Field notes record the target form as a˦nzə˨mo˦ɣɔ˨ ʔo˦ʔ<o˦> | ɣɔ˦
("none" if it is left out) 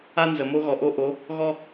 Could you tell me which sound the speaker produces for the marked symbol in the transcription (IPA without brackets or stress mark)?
o˨˦